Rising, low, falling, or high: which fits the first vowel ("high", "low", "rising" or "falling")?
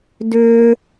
high